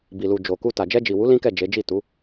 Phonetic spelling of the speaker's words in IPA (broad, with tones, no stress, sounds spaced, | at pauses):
b i˨ l u˨ d͡ʒ o˨ k u˧ t a˨ d͡ʒ ɛ˧ d͡ʒ i˨ w u˨˦ l ĩ˦ k ɛ˦˨ d͡ʒ e˨˦ d͡ʒ i˦˨ t u˨˦